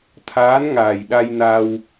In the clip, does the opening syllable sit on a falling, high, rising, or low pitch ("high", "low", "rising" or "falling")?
rising